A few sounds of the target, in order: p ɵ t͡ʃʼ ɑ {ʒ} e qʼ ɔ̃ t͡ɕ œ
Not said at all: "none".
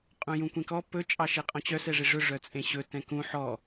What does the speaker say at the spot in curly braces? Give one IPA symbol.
ʃ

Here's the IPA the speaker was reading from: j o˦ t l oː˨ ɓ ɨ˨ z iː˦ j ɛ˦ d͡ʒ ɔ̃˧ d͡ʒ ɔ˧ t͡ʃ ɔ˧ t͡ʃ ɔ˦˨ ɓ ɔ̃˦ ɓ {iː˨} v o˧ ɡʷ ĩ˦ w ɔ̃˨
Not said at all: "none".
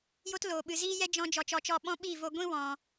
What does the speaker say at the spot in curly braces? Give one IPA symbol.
iː˦˨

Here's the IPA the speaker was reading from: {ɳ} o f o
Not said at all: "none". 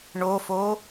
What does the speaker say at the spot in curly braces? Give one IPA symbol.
ɳ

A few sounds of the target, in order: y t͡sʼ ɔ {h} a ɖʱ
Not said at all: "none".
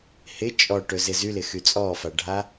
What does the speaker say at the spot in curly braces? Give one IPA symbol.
f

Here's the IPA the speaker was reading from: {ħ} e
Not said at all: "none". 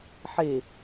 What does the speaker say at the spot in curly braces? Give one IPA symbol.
ħ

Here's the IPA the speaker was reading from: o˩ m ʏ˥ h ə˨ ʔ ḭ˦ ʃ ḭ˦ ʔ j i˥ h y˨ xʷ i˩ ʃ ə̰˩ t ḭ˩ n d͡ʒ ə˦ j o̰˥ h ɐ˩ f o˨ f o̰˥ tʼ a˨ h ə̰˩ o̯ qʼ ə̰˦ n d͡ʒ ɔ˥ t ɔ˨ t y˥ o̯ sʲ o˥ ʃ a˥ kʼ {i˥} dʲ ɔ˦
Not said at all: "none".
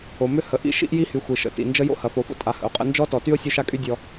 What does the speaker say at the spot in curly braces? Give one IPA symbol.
y˥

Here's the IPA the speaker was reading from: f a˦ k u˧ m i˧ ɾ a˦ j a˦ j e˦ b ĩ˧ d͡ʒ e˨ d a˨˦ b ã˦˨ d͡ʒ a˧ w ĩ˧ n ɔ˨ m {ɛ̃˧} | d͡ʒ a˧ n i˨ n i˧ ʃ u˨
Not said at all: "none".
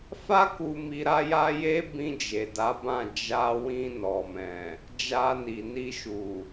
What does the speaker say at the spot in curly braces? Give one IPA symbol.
ɛ̃˨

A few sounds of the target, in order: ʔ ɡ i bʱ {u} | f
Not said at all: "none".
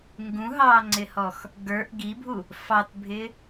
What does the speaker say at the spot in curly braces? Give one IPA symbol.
u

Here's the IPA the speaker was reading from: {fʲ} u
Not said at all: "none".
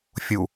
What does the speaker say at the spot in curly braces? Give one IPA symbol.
fʲ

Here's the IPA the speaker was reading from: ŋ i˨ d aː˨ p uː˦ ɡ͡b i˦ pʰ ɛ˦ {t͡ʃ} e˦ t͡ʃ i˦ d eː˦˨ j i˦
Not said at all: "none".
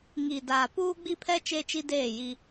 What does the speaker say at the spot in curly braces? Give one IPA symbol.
t͡ʃ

